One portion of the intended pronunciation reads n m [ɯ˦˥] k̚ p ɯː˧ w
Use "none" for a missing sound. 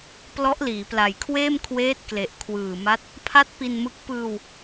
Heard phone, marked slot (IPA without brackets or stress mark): ɯ˦˥